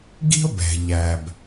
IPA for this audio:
ɡ i̤˥ o̯ b ɛ̤˩ ʎ æ˩ b

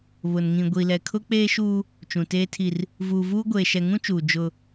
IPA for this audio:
β ʊ˨ n ŋ ĩ˨ ɡʷ i˨ l ɛ˨ kʰ ʊ˦ k͡p eː˦ ʃ uː˦ | t͡ʃ ũ˨ t eː˦ tʰ i˦ r | v uː˨ v uː˦ ɡʷ eː˨ ʃ ɛ˨ ŋ ũ˦ t͡ʃ uː˨ d͡ʒ ʊ˦

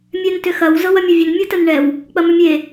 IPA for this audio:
mʲ ɛ n t ʏ x ɐ w z ɤ w ɐ mʲ ɐ vʲ ə n mʲ ɤ t ə n ɳ ɛ w | k͡p ɐ m ʏ mʲ e

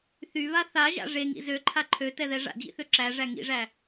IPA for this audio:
θ y β a θ a ʒ a̰ ʐ e ŋ ḭ z ø ǃʰ a ǃʰ ø t ɛ ð ɛ ʐ a̰ d͡ʑ ḭ θ ø ǁ æ ʐ æ ŋ ḭ ʐ æ

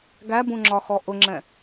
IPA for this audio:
ɡ æ b ũ ŋ͡ǁ ɒ x ɔ ʔ ʊ ŋ͡ǁ ɛ̃

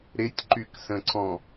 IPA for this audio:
ɾ ɪ tʲ ǃ y k s ə̃ ǀ ɔ̃

